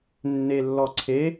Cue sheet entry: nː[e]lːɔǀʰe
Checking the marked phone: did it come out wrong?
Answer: no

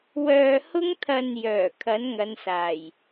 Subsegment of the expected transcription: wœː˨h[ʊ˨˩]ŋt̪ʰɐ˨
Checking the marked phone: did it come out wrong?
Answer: yes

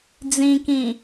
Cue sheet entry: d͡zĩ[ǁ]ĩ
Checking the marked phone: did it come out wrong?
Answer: yes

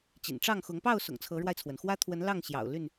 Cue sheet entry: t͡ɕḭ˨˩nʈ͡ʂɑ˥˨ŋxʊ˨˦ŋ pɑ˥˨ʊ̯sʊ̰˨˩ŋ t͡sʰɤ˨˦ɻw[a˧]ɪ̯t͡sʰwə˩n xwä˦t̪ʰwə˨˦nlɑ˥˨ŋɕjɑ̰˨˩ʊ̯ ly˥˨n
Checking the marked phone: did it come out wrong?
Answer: no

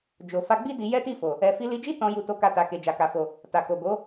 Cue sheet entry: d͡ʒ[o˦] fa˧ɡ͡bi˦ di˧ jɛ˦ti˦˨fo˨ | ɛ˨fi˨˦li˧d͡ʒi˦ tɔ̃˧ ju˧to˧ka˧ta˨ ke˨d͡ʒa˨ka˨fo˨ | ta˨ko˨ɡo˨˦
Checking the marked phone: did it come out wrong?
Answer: yes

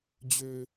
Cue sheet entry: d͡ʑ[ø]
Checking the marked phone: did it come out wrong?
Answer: no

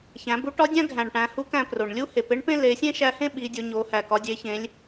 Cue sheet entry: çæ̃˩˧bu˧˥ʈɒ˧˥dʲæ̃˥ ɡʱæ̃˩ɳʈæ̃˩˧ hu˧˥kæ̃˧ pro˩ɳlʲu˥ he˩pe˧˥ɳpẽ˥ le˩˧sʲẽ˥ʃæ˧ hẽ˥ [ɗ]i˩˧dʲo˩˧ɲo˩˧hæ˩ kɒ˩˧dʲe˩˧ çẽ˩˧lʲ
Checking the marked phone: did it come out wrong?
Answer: yes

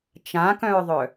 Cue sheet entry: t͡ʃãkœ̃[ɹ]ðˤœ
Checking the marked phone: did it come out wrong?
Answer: no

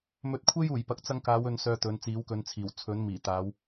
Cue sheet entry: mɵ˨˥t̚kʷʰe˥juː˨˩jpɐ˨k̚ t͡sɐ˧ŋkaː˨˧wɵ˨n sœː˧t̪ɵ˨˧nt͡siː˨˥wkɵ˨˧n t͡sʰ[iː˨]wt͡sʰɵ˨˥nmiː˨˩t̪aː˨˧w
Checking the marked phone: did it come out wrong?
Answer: yes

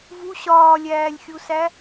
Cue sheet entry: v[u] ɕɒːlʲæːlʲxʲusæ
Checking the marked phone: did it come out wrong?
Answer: no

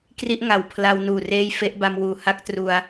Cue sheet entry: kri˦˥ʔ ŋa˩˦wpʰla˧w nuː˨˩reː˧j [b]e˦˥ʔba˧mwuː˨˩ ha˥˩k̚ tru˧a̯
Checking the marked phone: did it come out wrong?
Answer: yes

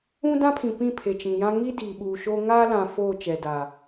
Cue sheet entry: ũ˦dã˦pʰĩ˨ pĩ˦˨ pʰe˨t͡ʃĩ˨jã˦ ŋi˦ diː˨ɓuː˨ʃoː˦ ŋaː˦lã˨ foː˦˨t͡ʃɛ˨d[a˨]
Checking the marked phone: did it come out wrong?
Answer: no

